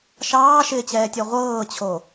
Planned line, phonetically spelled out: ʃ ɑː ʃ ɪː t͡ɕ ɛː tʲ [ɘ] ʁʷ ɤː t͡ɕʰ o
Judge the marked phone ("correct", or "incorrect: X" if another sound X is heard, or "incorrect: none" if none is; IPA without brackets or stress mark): incorrect: ɛ